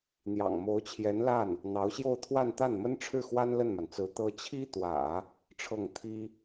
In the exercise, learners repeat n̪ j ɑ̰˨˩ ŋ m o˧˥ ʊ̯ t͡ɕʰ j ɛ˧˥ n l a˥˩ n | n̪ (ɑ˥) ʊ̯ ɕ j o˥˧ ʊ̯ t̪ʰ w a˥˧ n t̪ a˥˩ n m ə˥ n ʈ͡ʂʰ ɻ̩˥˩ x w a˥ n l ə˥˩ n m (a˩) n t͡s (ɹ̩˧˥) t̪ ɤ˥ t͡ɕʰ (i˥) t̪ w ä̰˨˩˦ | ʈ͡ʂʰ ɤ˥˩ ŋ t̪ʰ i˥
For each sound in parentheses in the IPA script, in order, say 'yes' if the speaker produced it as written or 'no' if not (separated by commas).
no, yes, yes, yes